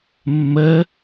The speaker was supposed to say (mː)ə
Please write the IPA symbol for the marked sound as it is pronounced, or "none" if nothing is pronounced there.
mː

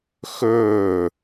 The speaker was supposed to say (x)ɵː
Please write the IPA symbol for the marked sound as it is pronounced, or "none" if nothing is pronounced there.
x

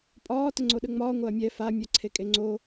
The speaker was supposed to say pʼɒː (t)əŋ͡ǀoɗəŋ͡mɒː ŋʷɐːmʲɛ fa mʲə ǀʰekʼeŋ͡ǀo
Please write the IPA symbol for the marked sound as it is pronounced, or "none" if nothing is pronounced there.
t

